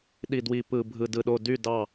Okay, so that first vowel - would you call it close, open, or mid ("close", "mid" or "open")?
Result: close